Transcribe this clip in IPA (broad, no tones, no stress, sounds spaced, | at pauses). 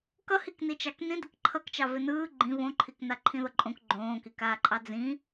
k ʌ h i k n i t͡ʃ ɑ k n ĩ d ɪ k ǃʰ ʌ k t͡ʃ ɑ v ɪ n ɯː ɡ͡ǃ ĩ β õ ǃʰ i k n a ǃʰ ĩ ð ʌ ǃʼ õ k ɡ͡ǃ õː k i k aː ǃʼ ɑ d͡z ĩ